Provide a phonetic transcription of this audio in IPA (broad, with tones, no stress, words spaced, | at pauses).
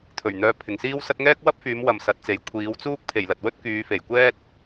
t̪ʰɵ˨˩ɥ n̪œː˨ pʰɪ˨ŋsiː˥wsɐ˥t̚ ŋɛː˥k̚wɐ˥p̚fyː˨˧mwɐ˨m sɐ˨˥t̚t͡se˨j kʷʰiː˨˧wt͡suː˥k̚ pʰe˨˩jlɐ˨t̚wɵ˥t̚ kyː˨˧fe˨˩jkʷɛː˥t̚